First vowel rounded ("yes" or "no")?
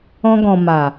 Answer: yes